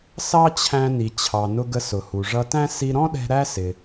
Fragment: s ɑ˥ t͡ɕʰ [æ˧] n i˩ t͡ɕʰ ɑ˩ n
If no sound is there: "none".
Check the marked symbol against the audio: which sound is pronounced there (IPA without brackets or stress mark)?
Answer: æ̃˧